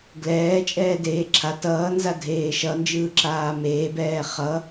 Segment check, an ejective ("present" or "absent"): present